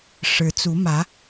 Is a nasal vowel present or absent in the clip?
absent